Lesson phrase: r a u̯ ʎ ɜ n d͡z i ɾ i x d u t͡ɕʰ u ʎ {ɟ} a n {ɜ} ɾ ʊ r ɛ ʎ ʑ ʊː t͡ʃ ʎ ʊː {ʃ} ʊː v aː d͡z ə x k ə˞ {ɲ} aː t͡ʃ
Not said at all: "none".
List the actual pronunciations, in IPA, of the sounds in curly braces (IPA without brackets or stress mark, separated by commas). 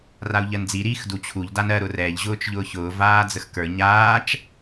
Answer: d, ɜ, ç, ɲ